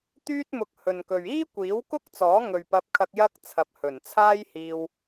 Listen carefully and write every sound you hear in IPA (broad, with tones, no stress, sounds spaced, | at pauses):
t̪ yː˥ t̚ m ʊ˧ k̚ h ɵ˨ n k ɵ˨ ɥ iː˥ kʷ iː˨˥ w k ʊ˥ k̚ t͡s ɔː˨˥ ŋ ɵ˨ ɥ p ɐ˧ p̚ kʰ ɐ˧ k̚ j ɐ˥ k̚ t͡sʰ ɐ˨˥ p̚ h ɵ˨˩ n t͡sʰ aː˥ j h iː˧ w